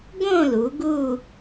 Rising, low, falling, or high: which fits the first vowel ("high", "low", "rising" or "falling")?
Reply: falling